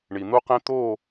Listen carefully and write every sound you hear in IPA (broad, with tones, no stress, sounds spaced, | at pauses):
ɳ i˨ n̪ u˦ q ẽ˦ t̪ o˦˨